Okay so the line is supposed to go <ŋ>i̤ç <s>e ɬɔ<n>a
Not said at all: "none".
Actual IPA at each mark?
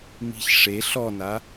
m, ʂ, n

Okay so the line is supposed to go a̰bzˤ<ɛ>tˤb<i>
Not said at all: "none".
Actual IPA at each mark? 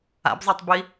ɛ, i

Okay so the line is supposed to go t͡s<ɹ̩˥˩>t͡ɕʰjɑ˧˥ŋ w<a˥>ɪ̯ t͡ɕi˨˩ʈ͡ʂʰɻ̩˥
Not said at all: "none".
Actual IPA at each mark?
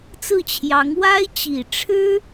ɹ̩˥˩, a˥

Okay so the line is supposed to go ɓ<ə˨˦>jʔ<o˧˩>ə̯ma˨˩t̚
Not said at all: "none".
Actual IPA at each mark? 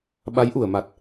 a˨˦, u˧˩

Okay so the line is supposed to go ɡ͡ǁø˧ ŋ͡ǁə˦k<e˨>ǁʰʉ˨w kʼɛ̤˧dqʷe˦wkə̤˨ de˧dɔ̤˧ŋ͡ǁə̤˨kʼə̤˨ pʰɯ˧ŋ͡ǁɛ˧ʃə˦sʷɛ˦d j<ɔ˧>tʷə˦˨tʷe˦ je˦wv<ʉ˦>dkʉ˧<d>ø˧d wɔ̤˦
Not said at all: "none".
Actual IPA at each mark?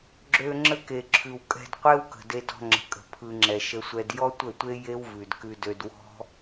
e˨, ɔ˦, ʉ˨, d

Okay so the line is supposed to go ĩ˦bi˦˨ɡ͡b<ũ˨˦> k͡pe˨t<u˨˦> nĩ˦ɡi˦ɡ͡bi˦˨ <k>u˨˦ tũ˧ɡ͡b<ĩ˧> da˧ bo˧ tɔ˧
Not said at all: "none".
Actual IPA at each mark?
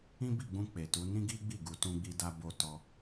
ũ˧, u˨˦, ɡ, i˧

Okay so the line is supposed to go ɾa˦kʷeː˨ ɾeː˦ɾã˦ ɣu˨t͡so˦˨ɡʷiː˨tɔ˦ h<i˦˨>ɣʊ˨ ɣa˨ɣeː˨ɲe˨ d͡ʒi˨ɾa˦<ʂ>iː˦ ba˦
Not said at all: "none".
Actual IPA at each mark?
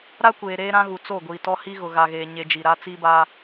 i˦, t͡s

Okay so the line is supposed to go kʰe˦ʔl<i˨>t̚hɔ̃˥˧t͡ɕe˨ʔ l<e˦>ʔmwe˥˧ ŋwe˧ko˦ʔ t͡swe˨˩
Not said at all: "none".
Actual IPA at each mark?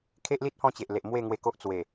i˦, e˨

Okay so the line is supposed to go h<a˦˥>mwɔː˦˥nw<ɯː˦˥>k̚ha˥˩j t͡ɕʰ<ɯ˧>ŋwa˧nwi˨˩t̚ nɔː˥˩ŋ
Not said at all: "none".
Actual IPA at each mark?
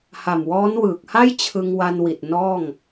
a˨˩, ɯː˨˩, ɯ˧

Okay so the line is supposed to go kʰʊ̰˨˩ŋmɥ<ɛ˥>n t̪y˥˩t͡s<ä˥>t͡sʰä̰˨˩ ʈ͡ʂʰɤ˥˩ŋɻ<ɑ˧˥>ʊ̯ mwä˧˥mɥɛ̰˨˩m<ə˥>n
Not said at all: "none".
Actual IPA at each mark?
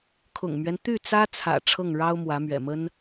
ɛ˦, ä˥, ɑ˥, ə˥

